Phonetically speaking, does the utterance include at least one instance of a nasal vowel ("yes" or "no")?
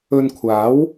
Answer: no